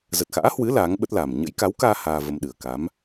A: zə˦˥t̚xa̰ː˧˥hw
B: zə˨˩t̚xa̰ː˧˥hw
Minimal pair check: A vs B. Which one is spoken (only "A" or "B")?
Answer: B